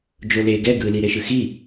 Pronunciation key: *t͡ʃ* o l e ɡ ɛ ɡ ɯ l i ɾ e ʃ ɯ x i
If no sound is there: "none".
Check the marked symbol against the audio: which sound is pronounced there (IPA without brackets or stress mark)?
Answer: d͡ʒ